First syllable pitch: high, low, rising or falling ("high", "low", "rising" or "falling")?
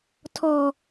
high